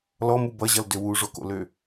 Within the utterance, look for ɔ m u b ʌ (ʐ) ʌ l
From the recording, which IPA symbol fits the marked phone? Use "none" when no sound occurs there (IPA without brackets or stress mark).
ʑ